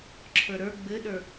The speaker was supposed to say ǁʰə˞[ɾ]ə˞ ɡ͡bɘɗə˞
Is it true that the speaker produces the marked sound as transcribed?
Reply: yes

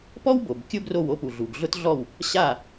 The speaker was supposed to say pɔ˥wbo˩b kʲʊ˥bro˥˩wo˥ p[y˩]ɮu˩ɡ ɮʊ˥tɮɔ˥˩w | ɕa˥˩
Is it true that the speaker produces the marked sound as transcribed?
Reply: no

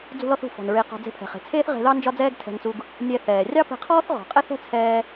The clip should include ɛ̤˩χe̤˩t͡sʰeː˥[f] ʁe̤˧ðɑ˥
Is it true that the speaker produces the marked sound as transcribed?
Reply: no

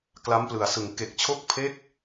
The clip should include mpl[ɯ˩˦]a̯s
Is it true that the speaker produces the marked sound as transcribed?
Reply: no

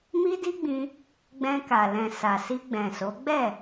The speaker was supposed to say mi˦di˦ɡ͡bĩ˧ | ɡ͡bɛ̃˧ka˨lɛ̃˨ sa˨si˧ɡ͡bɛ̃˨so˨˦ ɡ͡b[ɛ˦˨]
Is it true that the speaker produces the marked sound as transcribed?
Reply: yes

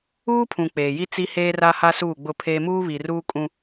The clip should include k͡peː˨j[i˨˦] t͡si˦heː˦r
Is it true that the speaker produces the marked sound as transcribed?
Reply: no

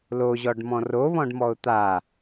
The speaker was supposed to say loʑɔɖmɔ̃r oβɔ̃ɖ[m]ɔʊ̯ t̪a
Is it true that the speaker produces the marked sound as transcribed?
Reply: yes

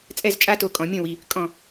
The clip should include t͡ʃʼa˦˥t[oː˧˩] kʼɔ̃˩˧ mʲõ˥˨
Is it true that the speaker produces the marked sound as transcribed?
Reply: no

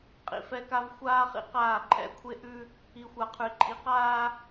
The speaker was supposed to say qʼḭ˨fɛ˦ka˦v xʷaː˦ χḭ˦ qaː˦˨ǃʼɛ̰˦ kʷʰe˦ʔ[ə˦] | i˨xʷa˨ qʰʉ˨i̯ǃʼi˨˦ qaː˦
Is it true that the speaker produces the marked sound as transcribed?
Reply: no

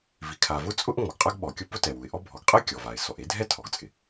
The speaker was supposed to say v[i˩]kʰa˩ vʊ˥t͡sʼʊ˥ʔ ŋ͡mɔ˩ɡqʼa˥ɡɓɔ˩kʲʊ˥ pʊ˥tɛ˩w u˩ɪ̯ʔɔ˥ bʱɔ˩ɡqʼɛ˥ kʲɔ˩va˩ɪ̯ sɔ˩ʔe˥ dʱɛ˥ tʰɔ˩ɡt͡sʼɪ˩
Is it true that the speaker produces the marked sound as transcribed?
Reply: yes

